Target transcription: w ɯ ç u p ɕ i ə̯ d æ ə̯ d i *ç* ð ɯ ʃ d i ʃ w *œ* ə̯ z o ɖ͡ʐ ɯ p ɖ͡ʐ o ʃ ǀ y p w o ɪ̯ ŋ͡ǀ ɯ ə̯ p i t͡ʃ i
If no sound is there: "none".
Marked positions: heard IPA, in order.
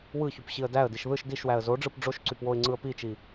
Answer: ʃ, æ

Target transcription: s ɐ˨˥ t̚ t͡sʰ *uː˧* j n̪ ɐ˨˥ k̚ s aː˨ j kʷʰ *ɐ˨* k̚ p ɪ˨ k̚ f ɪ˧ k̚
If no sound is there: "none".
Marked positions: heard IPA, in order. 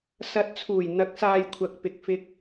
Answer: uː˨˩, ɐ˨

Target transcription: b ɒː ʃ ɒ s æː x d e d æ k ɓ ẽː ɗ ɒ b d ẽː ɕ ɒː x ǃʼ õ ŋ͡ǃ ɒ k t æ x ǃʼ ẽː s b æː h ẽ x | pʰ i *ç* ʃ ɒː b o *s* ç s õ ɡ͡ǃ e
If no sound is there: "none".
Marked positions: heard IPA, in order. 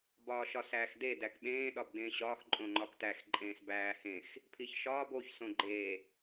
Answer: ç, none

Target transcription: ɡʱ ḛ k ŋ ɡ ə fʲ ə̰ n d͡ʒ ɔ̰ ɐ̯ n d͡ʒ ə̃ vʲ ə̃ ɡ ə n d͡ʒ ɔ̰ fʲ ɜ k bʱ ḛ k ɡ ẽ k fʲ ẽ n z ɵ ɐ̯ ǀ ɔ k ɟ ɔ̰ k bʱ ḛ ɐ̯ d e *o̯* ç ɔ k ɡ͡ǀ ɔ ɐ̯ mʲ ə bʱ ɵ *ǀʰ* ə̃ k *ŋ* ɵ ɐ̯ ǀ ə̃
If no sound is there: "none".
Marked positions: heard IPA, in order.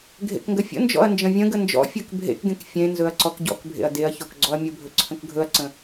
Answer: ɐ̯, ǀʰ, ɡʱ

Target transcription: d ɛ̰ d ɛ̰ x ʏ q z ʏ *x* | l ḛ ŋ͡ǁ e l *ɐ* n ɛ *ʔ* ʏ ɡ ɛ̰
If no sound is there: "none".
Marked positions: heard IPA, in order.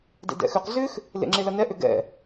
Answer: x, ɐ, ʔ

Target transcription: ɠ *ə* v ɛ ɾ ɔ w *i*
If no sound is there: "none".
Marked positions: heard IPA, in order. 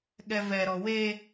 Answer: ɛ, e

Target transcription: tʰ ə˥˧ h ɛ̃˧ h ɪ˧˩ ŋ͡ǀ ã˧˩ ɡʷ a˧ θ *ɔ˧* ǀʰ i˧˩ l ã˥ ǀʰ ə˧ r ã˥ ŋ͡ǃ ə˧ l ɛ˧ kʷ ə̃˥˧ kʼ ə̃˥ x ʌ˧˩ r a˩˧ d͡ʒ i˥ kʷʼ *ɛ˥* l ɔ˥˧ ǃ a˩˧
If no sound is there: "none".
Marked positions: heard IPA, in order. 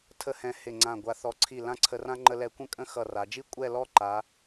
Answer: ɔ˧, ɛ˥˧

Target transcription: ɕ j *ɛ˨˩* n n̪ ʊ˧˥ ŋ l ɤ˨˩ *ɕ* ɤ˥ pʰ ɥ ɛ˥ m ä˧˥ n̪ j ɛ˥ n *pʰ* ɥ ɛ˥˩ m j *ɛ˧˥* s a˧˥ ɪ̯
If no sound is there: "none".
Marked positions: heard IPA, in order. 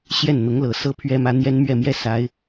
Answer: ɛ˥˩, s, m, ɛ˥

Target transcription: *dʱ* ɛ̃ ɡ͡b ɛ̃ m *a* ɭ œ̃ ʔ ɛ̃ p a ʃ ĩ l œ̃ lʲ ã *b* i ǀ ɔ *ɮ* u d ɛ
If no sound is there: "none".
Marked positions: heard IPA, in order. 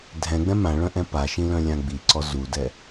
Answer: dʱ, ã, ɡ͡b, z

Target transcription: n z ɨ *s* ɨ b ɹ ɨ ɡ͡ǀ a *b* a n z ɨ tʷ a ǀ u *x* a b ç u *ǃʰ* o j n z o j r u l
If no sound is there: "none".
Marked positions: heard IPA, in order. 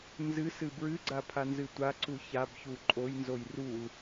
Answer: s, pʰ, ç, ǃʼ

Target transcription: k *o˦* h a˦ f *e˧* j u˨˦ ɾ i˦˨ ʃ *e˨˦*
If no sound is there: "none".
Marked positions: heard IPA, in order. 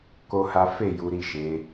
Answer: o˦, e˦˨, e˨˦

